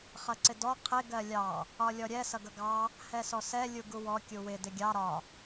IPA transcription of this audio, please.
χ ʌ ǀ ɪ d ɔ qʰ ɪ ɡ ɜ lʲ ɑ | ɒ lʲ ɔ ɾʲ ɛ s ʌ ɡ ʌ ɡ ɑ | h ɛ s ɔ s ɛ lʲ u ɡ u w ɔ kʲ u w ɪ d ɪ ɡʲ ɑ ɾ ɒ

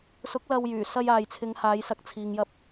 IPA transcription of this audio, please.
s ʊ˨˥ k̚ l ɐ˧ w j yː˨˩ s ɐ˧ j aː˨ j t͡sʰ ɪ˨˧ ŋ h aː˨˧ j s ɐ˨˥ k̚ t͡sʰ iː˨ ŋ j ɐ˧ p̚

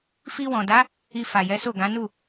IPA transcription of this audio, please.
f i˧ w ɔ̃˨ d a˨˦ | i˧ f a˨ j ɛ˨˦ s o˦˨ ɡ ã˨˦ n u˦˨

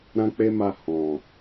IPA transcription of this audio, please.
ɾ ã˦ k͡p e˦ m a˧ h ɔ̃˨

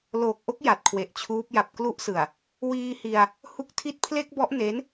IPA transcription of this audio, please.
l oː˨˩ k̚ ʔ o˦˥ k̚ j a˨˩ t̚ kʰ w e˨˩ ʔ t͡ɕʰ uː˦˥ p̚ j a˨˩ p̚ k l u˦˥ ʔ s ɯ˨˩ a̯ | w iː˧ h i˧ a̯ | h u˥˩ k̚ tʰ i˥˩ t̚ pʰ l e˥˩ k̚ b ɔ˦˥ ʔ n e˦˥ n

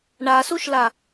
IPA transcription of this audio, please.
ɳ a s u ʃ l a

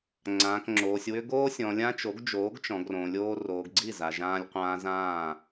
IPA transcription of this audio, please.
ŋ͡ǀ ãː˨ k ŋ͡ǁ oː˨ sʲ w ʏ˦ ɡ oː˦ sʲ ɔ̃˨ lʲ ã˦ t͡ʃ o˨˦ ɡ d͡ʒ oː˨˦ ɡ t͡ʃ ɔ̃˨ ɡ r õ˨ lʲ oː˦ r oː˨ ɡ ɡ͡ǀ i˦˨ z a˨ ʒ ãː˦ lʲ qʷ ãː˦ z ãː˦˨

